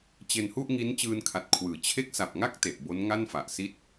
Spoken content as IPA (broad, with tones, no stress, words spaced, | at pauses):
t͡ɕe˧nhu˥˩ʔŋi˦˥n t͡ɕɯː˧nkʰa˨˩t̚kʰwɯː˩˦ t͡ɕʰe˦˥k̚sa˨˩p̚ ŋa˥˩k̚ te˨˩ʔbo˦˥n ŋa˥˩nfa˨˩ʔ si˥˩t̚